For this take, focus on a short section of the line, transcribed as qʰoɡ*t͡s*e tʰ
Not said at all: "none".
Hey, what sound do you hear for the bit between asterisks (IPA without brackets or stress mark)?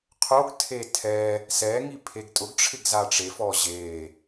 tʰ